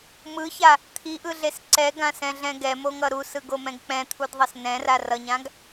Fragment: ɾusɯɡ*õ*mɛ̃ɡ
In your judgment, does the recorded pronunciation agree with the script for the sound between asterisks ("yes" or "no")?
no